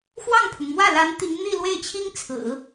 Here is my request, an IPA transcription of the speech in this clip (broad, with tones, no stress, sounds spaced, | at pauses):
x w ɑ˥˩ ŋ pʰ ʊ˩ ŋ m w ä˥˩ l a˧˥ n t̪ i˧˥ ŋ n̪ i˥˧ l w e˥˩ ɪ̯ t͡ɕʰ i˥ ŋ t͡sʰ ɹ̩˨˩˦